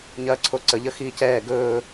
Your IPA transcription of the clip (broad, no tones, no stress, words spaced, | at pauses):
ɲɐːǀʰoǀə ʎəxiːcɛː ɡɵː